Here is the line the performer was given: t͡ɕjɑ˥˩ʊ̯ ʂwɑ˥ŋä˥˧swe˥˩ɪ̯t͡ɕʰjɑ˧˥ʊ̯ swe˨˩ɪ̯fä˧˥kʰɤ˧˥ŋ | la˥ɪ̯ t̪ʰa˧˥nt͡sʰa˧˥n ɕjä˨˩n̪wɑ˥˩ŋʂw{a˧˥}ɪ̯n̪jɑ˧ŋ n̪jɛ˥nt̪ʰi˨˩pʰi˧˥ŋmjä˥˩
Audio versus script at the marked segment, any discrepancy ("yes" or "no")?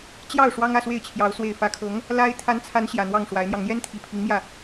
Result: no